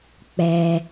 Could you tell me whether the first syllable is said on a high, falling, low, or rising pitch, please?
low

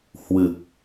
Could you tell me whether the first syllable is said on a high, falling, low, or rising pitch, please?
low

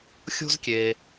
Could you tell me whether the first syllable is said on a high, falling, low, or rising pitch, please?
high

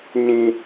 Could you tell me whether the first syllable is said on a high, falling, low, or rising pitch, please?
high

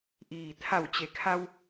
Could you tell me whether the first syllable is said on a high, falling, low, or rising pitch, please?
low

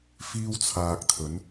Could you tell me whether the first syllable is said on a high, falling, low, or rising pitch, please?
high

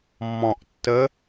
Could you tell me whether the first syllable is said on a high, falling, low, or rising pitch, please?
low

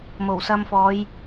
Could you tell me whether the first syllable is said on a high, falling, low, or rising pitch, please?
low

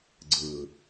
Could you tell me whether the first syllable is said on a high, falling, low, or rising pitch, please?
low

